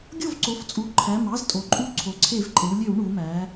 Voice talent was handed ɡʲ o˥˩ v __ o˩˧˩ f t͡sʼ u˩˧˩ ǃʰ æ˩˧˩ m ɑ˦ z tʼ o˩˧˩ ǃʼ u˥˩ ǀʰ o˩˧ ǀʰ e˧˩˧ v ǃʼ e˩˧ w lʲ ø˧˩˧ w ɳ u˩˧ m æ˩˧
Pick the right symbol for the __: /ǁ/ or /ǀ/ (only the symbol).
ǀ